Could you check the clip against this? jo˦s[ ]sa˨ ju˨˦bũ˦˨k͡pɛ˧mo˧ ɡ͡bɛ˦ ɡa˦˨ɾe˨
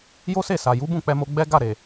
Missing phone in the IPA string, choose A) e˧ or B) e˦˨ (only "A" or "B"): B